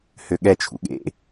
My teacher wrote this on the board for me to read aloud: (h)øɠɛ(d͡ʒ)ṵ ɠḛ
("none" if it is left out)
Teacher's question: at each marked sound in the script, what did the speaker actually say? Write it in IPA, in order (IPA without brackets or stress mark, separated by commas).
h, t͡ʃʰ